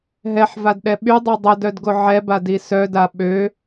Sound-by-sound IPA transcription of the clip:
ɦ ɛ ħ v a d ɗ ɛ ɓ y dˤ ø dˤ ə d œ d ɡ o ʕ ɛ b a d i s œ d a ɓ ø

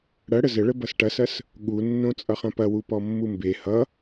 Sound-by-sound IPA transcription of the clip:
ɽ ɐ ɽ ə z ə ɭ ə b ʌ s ʈ ɐ s ɐ s | ɠ u nː õ t͡sʼ ʌ χ ɐ̃ p ɐ w u p ɔ mː u m b e h ʌ

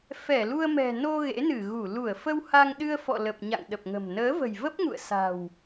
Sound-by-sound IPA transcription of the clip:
f ɛ˧˩ l u˧ ə̯ m ɛ̤˨˩ n o˧ ɣ ḛ˧˥ n ɨ˧˩ ɣ u˧˩ l u˧˩ ə̯ f ə˧ w h a˧ ŋ ɗ ɨ˧ ə̯ f ɔ̰˧˨ l ə˨˩ p̚ ɲ a̰˧˨ ŋ ɗ ə˨˩ p̚ ŋ ə̤˨˩ m n əː˨˦ v ə̤˨˩ j v ə˦˥ p̚ ŋ ṵ˧˨ ə̯ s a̤˨˩ w

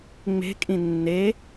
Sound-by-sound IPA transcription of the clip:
ŋ͡m e̤ kʼ ĩ nː e

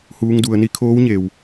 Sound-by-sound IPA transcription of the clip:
h uː˧˥ ŋ d u˩˧ ə̯ n i˧ kʰ oː˧˥ w ɲ e˩ w

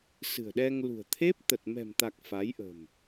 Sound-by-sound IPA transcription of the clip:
s ɨ̤˨˩ ə̯ ɗ ɛ˧ ŋ l ṳ˨˩ ə̯ t̪ʰ e˦˥ p̚ t̪ ə˨˩ t̚ m ɛ̤˨˩ m t̪ a˨˩ k̚ f a˨˦ j ʔ ə̤˨˩ m

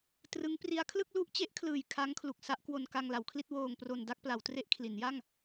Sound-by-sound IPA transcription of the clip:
t r ɯ˦˥ ŋ p r i˦˥ a̯ kʰ l ɯ˥˩ k̚ l u˥˩ ʔ t͡ɕ e˦˥ ʔ kʰ l ɯː˨˩ j kʰ a˦˥ ŋ kʰ l u˨˩ k̚ s a˦˥ ʔ k w o˧ n k a˧ ŋ l a˩˦ w kʰ l i˥˩ t̚ w oː˧ ŋ p r o˧ n d a˥˩ k̚ p l a˩˦ w t r e˦˥ ʔ kʰ l i˩˦ n j a˥˩ ŋ

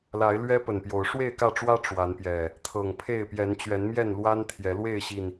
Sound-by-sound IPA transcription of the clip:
l a˨˦ ɪ̯ l ɥ ɛ˦ p ə˨˩ n p j o˨˦ ʊ̯ ʂ w e˥˨ ɪ̯ k ä˥˨ ʈ͡ʂ w ä˦ ʈ͡ʂ w a˨˦ n p j ɛ˨˩ | t̪ʰ ɤ˨˩ ŋ pʰ e˥˨ ɪ̯ p j ɛ˨˦ n t͡ɕ ɥ ɛ˨˦ n m j ɛ˥˨ n l w a˦ n t̪ʰ j ɛ˨˦ l w e˥˨ ɪ̯ ɕ i˨˩ n

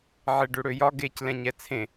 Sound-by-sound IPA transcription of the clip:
ʕ e ɖ ø ɽ ø j ɒ ɡ e c l ɛ̃ ɲ ɛ t͡sʰ ẽ

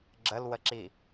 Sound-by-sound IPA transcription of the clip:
ɡ͡ǁ ə l w ə ǁ i

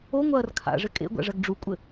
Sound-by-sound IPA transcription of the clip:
o ŋʷ ɐː r kʰ a̰ ʐ ɘ kʼ ḛ ɡʷ a̰ ʐ ɐ ɡ ɖ͡ʐ u kʷʼ ɘ

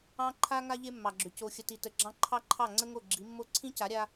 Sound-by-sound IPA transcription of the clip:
ɑ̃˦ ǃʰ a˦ ŋ a˦ ʎ e˦ mː ɑ˨ ɡ͡ǁ ʏ˨ c o˨ xʲ ə˨ t i˨ t ə˨ ɡ͡ǁ ɑ̃˦ ǃʰ ɑ˦ ǃʰ ɑ˦˨ ŋ͡ǀ ə˦ ŋ o˦˨ ɡ͡ǁ i˨˦ mː o˦ ǀʰ ĩ˦ c a˨˦ ɾʲ a˦

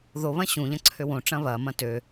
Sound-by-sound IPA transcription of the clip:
ð o β ɐ̃ ɕ ũ ʎ ɐ̃ ǀʰ ø w õ ʈ͡ʂ ɐ̃ β ɐ m ɐ̃ t ø

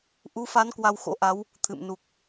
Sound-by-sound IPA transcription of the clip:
ʔ u˨˦ f a˨˦ n k w a˧ w x o̰˧˥ ʔ a˨˦ w | t̪ʰ ɨ̰˧˨ m n u˨˩ k̚

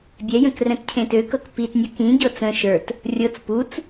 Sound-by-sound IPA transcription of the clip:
bʲ ɛ j ə̃ k r ɛ̃ t cʰ ẽ t ø k ɤ k p i t nʲ ɤ k ĩ ɟ ɤ t͡s ə̃ ʃ ə˞ t | rʲ ɤ t͡s p u t͡s

